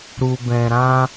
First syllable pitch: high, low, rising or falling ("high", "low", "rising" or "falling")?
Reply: low